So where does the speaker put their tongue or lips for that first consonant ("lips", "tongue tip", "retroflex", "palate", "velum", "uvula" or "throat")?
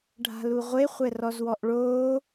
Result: retroflex